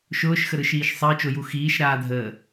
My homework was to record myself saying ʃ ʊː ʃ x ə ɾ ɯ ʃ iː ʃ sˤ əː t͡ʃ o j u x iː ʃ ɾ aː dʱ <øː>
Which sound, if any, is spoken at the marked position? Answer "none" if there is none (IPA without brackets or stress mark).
əː